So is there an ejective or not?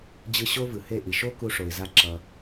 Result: no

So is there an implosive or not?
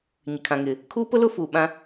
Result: yes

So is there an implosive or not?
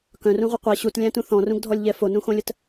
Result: no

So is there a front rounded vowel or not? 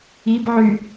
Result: yes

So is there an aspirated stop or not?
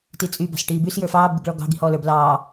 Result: no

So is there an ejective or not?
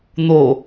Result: no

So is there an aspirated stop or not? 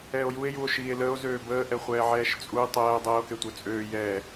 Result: no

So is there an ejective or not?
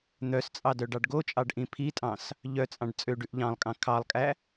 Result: yes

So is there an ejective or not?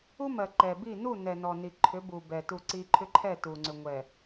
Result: no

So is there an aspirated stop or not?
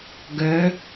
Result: no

